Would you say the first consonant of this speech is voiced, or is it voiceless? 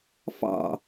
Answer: voiceless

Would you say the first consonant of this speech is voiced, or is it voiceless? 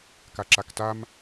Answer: voiceless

